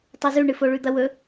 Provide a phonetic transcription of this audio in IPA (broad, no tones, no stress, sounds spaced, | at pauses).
tˤ o z ʉ ɳ ɨ f o ɭ ʉ d̪ ɐ w ɵ